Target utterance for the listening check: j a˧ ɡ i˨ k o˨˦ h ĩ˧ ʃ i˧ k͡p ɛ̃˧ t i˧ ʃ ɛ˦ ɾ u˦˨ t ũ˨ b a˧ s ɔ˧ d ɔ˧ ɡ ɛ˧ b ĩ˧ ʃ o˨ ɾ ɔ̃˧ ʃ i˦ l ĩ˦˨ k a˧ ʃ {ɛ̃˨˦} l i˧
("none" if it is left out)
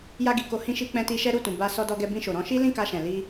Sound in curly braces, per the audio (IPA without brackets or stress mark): ɛ̃˨